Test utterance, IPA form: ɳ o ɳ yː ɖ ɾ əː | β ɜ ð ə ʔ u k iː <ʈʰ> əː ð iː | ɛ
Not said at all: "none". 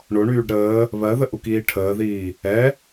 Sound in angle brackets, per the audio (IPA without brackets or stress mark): ʈʰ